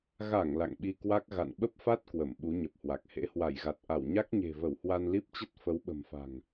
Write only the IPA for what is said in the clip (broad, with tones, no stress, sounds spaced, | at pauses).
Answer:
ɣ a˧˩ ŋ l a̰˧˨ ŋ ɓ i˧ k w a˦˥ k̚ ɣ a̰˧˨ n ɓ ə˦˥ p̚ f a˦˥ t̚ k w ə˧˩ m ɓ u˨˦ ɲ ə˨˩ p̚ h w a˨˩ k̚ h ḛ˧˥ h w a˧˩ j ɣ a˨˩ t̚ ʔ a˧˩ w ɲ a˦˥ k̚ ɲ e̤˨˩ v ə˧˩ w h w a˧ n l i˦˥ p̚ t͡ɕ ə˦˥ t̚ f ə˨˦ w ɓ ə̤˨˩ m f a̤˨˩ ŋ